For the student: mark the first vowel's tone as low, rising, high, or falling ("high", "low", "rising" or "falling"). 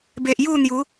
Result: low